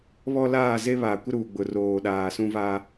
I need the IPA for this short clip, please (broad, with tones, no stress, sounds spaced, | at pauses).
β ɔ˦ l aː˦˨ z e˦ β a˨ kʷ ɪ˦ ɾ uː˨ ɡ͡b ʊ˨ r oː˨ ɗ aː˨ s ũ˦ v a˦